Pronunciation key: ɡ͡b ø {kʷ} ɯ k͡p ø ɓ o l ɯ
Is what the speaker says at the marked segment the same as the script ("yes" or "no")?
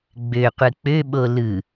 no